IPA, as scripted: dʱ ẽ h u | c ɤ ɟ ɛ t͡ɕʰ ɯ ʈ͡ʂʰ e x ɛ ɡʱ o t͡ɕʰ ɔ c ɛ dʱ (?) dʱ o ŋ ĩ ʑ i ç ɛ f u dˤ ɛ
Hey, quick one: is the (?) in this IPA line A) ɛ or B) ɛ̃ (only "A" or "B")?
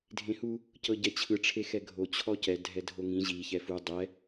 A